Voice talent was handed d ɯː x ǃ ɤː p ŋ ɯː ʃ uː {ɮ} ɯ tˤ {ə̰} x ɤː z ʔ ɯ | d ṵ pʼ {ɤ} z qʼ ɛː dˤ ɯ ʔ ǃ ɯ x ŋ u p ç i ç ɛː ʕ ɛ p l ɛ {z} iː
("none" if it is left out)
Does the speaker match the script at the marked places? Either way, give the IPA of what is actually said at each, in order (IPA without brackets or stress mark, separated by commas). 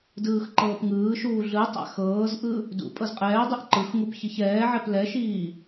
ɮ, a̰, ɤ, ʃ